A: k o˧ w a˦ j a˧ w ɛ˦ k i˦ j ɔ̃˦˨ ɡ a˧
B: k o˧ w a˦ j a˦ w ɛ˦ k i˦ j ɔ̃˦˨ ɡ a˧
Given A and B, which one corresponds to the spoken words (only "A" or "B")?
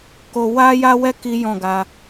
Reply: B